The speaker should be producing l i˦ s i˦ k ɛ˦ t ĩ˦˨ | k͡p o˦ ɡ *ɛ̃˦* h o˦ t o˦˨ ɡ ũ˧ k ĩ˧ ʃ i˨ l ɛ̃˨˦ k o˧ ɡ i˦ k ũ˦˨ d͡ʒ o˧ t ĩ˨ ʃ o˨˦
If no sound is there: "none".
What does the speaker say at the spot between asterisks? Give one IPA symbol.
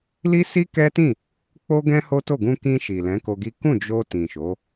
ɛ̃˦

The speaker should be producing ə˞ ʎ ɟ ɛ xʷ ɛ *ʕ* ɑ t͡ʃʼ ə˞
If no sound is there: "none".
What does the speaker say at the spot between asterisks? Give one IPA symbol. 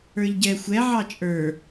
ʕ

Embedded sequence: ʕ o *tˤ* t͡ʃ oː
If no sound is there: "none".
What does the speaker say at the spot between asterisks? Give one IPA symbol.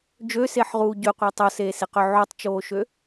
tˤ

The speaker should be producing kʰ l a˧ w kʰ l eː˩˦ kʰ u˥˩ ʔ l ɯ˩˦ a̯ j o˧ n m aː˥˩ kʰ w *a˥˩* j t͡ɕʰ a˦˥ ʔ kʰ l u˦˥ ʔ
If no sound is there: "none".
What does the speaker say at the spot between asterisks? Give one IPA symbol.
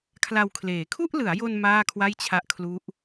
a˥˩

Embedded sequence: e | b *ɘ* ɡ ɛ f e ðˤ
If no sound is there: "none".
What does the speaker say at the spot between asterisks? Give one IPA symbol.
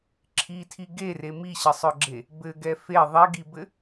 ɘ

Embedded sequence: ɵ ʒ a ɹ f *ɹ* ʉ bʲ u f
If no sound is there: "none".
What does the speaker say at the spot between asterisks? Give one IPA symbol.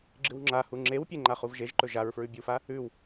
ɹ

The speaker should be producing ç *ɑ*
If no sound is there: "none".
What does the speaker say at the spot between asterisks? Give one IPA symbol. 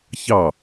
ɑ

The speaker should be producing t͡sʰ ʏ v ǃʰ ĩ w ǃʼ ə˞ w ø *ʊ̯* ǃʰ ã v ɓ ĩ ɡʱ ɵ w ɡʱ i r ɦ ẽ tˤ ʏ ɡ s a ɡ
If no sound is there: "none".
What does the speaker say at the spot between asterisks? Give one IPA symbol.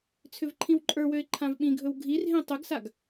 ɪ̯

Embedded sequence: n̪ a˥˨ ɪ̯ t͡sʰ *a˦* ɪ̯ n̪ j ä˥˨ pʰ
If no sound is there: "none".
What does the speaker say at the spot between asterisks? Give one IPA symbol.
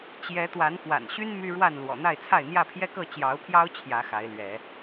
a˥˨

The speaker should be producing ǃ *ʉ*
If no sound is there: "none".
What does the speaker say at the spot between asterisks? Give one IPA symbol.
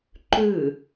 ʉ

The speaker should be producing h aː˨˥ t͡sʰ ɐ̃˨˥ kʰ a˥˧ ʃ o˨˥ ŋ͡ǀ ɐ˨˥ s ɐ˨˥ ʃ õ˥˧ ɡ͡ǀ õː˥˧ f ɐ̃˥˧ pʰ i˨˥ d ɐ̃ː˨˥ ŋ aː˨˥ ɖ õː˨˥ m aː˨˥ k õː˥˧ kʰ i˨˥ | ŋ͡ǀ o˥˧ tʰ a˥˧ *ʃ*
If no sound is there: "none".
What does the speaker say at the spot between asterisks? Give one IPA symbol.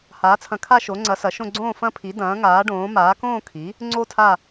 none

